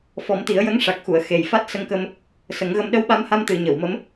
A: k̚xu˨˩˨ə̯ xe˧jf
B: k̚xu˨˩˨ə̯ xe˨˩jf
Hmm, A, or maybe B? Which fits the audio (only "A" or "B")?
B